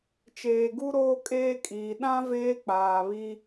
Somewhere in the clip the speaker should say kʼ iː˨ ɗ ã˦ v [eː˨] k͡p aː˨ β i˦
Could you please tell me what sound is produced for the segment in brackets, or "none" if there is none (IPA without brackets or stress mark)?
eː˦